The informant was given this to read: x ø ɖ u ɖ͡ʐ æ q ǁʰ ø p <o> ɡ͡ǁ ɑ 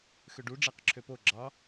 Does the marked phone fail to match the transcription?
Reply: no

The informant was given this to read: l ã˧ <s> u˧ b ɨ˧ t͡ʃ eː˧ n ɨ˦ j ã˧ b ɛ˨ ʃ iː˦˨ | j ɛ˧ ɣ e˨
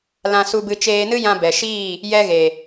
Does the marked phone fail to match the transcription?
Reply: no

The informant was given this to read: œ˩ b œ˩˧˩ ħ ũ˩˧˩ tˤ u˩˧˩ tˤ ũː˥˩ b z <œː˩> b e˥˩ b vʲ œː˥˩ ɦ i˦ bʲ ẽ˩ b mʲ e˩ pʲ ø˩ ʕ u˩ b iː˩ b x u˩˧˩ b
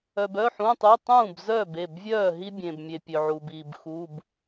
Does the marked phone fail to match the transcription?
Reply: yes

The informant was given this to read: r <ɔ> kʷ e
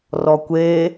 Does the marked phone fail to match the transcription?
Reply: no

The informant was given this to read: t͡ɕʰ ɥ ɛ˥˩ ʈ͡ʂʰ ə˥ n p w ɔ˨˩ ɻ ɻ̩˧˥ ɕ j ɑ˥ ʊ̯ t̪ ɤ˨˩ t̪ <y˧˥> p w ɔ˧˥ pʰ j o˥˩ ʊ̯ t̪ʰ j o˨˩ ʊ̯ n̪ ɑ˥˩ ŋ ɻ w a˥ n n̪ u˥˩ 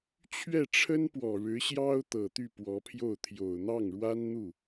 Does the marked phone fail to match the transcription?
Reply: yes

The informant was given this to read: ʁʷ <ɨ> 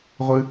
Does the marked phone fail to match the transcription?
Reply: no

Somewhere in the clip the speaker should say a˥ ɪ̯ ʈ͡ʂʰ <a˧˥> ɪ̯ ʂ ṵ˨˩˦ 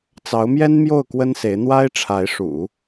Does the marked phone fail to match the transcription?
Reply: no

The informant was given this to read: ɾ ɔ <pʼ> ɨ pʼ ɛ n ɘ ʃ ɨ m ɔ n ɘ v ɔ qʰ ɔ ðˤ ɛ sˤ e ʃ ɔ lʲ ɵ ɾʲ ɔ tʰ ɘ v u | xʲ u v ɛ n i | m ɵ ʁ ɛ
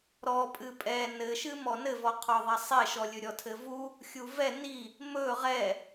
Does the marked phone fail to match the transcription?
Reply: no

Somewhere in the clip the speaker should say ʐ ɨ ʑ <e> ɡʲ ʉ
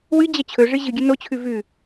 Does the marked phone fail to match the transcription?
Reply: yes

